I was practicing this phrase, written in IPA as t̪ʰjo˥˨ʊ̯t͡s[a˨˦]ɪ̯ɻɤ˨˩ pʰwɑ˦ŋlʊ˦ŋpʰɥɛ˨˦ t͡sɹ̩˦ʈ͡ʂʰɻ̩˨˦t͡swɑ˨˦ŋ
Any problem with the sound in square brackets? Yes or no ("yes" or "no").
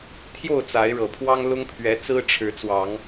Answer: no